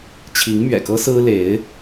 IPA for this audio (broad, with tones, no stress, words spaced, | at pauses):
t͡ɕʰi˧˥ŋmɥɛ̰˨˩kɤ˥ sɹ̩˥le˧˥ɪ̯